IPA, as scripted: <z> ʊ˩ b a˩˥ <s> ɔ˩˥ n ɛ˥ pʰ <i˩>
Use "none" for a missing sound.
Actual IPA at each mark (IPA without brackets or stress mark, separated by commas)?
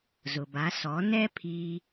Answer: z, s, i˧